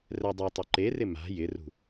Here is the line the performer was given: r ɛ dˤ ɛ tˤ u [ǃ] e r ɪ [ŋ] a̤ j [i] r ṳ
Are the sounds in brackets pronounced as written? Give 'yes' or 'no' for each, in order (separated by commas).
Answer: yes, no, no